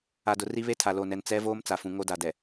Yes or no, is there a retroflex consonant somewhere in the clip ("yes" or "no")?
no